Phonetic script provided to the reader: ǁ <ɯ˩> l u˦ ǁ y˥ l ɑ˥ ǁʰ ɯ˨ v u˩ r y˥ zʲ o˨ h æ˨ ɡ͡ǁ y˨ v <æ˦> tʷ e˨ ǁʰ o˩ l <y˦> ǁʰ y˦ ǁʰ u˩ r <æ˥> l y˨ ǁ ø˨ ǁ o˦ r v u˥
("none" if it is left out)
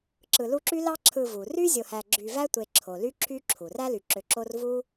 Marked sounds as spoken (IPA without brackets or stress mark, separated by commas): ɯ˨, æ˦, y˦, æ˥